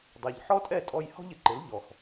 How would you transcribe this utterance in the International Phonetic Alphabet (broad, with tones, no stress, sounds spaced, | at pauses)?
dˤ ɛ˩ ʎ ħ ɔ˥ tʼ ɛ˥˩ tʼ ɔ˧ j h ɔ̤˥ ʎ ɪ˧ ǃ ɪ˩˥ l ʎ ɔ˩ x